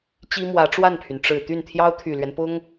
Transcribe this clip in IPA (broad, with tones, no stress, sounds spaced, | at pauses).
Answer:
t͡ɕ i˥ m w ä˧˥ ʈ͡ʂ w a˥˩ n pʰ y˩ n ʈ͡ʂ ɻ̩˨˩ t̪ y˥˩ n t̪ʰ j ɑ˥ ʊ̯ t̪ʰ y˨˩ l ɥ ɛ˦ n p ʊ˥ ŋ